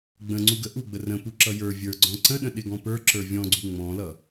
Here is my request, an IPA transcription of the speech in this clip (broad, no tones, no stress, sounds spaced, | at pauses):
ɡ͡b ə̃ ŋ͡ǀ u ɡ ə ʔ u ɡ͡b ə r ə̃ p u ǁ ʌ j ə˞ vʲ ə˞ ɡ͡ǀ ɔ̃ ǀ ə̃ ɗ ə̃ ɗ ɪ ɡ ɔ̃ p ə˞ ǁ ə˞ vʲ ɔ̃ ɡ͡ǀ u ŋ͡m ɔ̃ l ʌ